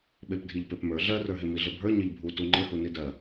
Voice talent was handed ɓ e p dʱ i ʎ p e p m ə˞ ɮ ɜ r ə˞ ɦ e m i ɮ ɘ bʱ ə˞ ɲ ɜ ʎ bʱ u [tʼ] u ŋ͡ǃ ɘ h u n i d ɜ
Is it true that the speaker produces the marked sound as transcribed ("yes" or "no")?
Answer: no